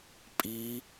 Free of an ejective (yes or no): no